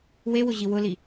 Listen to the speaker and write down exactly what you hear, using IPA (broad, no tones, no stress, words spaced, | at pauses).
wewʊʑi wʊli